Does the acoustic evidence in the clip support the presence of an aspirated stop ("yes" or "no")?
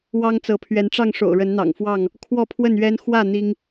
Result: yes